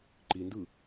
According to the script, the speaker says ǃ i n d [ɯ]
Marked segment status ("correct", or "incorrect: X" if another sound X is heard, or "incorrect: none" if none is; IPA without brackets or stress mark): correct